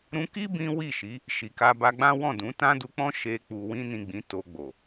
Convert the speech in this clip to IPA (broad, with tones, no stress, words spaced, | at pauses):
ɾũ˧ki˦ bĩ˦ wi˦˨ʃi˨˦ | ʃi˨ka˧ba˧ɡ͡bã˦ wɔ̃˦˨dũ˨˦ tã˦du˧k͡pɔ̃˦ ʃe˧ k͡pu˨wĩ˧nĩ˨ ɡ͡bĩ˨˦to˧ɡ͡bo˨